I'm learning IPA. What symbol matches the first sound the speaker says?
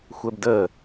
xʷ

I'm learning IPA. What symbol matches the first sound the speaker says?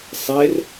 sˤ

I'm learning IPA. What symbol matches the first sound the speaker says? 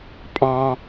pʼ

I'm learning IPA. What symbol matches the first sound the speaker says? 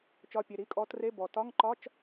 t͡ʃ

